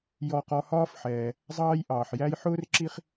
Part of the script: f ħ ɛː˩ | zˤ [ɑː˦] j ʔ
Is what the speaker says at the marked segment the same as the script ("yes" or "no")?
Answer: yes